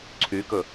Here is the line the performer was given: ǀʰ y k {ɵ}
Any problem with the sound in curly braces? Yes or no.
no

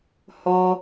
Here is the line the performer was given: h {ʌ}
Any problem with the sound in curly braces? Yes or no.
yes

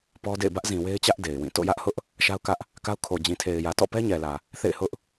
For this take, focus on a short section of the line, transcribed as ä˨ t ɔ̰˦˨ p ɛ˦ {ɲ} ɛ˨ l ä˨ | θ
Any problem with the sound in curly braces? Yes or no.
no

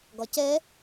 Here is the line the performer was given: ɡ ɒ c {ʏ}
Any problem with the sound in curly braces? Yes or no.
yes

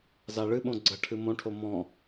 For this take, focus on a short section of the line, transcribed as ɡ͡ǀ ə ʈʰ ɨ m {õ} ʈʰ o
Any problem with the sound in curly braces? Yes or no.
no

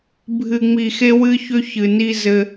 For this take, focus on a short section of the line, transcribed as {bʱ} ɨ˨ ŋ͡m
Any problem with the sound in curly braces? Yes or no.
no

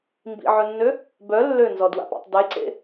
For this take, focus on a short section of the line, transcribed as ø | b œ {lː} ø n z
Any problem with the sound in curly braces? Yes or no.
no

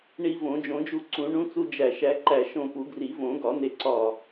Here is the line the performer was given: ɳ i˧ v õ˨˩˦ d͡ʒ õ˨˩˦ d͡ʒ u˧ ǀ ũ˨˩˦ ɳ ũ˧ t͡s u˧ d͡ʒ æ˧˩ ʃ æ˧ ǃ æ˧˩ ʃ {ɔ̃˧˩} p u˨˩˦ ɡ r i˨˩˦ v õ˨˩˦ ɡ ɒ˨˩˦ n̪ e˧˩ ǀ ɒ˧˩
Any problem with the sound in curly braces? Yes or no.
yes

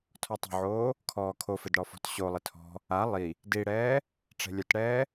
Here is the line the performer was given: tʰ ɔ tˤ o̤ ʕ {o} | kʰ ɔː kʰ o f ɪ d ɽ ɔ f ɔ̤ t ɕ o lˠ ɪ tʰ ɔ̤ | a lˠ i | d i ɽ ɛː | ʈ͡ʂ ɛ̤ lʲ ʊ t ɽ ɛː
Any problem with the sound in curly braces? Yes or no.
yes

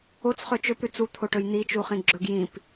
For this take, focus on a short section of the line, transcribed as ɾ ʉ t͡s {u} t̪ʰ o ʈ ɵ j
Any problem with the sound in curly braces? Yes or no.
no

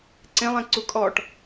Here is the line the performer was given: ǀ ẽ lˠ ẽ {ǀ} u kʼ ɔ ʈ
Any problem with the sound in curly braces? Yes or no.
no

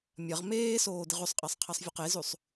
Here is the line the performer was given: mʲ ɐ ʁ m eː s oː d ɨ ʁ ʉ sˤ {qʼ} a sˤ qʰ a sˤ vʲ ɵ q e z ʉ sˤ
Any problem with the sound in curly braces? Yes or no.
no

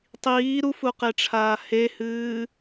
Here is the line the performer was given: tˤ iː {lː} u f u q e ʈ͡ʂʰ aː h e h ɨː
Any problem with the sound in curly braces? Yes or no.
yes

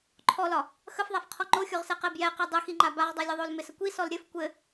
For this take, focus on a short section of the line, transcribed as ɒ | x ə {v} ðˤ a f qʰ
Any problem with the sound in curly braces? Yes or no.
yes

